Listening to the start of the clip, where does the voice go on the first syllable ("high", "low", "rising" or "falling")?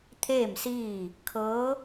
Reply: falling